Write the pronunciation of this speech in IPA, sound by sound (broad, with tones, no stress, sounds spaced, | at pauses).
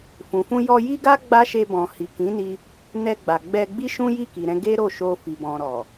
f ũ˨ f ũ˧ j ɔ˧ j i˦ ɡ a˦ ɡ͡b a˦ ʃ e˧ b ɔ̃˨ h i˨ k ĩ˨˦ n i˧ | n ɛ˧ ɡ͡b a˨ ɡ͡b ɛ˧ ɡ͡b i˦ ʃ ũ˦ j i˦˨ k i˨ ɾ ɛ̃˧ ɡ e˦ ɾ o˦˨ ʃ o˧ f i˨ b ɔ̃˨ ɾ ɔ˨